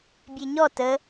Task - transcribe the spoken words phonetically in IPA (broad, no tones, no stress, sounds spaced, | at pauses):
bʲ e ɲ ɔ t ə